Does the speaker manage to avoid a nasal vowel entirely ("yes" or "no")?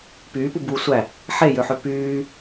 yes